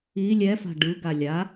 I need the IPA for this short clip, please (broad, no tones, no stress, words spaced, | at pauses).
i lʲɛfa̤ ɖɯɡa lʲa